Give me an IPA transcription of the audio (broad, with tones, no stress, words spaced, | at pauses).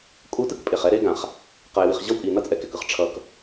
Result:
kʼu˧tɯ˦k pʼe˨χɛ˦ ɾe˦ɡã˨χ | qʌ˨ɪ̯wi˨χ ʑʌ˦wpʼi˨ nʌ˦t͡sʼɛ˨kɛ˨kɯ˦χ ʈ͡ʂʰʌ˧k